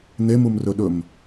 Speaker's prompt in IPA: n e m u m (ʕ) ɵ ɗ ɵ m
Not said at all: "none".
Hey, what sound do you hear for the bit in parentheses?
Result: r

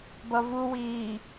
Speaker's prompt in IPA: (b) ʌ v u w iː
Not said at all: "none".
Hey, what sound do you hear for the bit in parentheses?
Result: b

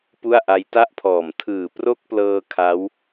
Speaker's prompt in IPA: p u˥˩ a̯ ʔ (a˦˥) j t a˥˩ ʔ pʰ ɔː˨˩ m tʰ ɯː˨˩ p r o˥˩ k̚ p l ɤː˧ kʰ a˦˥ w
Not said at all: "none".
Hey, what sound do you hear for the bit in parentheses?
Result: a˦˥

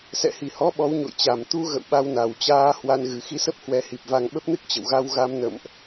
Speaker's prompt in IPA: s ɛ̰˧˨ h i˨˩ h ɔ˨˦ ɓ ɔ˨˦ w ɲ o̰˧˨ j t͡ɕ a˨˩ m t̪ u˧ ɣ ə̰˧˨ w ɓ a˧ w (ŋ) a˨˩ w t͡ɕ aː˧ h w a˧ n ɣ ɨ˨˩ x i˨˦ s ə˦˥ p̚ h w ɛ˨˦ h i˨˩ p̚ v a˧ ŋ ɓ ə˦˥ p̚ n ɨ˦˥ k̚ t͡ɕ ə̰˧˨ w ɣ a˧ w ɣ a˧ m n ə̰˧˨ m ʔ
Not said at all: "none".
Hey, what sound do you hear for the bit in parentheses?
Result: n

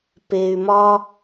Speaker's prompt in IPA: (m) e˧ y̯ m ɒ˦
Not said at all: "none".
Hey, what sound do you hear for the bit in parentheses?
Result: p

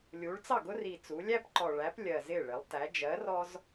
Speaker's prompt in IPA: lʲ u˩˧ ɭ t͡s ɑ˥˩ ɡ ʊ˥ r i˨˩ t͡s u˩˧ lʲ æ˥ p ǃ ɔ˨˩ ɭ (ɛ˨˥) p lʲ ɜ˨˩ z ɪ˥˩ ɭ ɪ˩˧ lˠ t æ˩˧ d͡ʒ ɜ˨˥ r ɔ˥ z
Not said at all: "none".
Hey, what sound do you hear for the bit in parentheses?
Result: æ˨˥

